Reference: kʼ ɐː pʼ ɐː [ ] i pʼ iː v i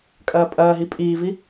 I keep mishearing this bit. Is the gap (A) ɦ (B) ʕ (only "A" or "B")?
A